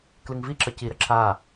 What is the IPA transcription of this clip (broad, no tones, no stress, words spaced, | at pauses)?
klɨŋviǁʌ ciɾə ǁa